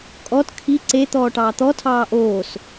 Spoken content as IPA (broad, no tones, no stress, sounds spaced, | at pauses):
kʼ ɔ t kʰ i ǀ e t̪ ɔː ʈ ɑː t̪ ɔ tʰ ɑː ʔ oː s